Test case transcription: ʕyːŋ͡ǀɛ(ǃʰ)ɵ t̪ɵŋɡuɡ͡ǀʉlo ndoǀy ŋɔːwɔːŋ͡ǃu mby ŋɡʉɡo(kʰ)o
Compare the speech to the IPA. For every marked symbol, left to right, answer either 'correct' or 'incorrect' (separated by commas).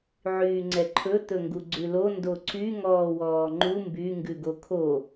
correct, correct